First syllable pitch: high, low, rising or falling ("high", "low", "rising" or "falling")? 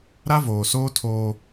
high